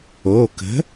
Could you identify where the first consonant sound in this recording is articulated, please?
velar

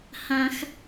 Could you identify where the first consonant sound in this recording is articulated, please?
glottal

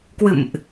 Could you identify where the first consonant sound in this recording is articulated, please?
velar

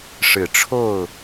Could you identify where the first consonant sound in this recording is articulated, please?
retroflex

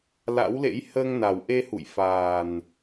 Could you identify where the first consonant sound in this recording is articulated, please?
alveolar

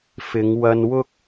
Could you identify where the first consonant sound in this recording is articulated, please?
labial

